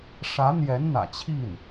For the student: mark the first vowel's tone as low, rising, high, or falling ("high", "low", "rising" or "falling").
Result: rising